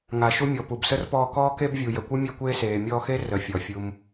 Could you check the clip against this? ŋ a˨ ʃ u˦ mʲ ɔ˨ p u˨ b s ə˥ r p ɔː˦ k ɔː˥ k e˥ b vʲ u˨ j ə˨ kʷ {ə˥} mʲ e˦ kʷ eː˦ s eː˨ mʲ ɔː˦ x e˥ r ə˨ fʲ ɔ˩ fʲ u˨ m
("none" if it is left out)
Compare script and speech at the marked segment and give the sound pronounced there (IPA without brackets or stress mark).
ɨ˥